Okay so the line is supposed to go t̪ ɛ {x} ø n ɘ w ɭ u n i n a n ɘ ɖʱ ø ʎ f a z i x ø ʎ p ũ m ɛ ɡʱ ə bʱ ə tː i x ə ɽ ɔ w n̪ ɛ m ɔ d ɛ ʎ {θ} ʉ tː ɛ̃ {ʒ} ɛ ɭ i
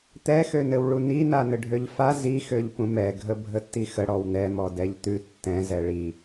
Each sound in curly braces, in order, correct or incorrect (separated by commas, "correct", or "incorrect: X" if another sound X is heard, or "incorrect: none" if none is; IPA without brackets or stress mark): correct, incorrect: t̪, incorrect: z